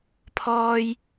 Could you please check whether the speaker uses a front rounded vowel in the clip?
no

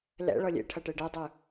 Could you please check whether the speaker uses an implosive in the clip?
no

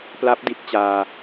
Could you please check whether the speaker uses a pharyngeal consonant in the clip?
no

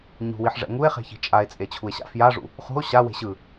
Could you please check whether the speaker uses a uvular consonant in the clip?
yes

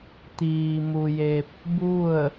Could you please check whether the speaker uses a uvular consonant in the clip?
no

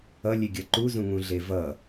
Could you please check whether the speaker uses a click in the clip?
yes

